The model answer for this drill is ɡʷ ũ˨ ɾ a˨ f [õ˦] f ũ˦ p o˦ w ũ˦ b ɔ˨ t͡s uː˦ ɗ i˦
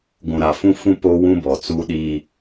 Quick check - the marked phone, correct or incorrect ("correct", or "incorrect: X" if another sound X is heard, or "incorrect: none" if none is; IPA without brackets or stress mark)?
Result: incorrect: ũ˦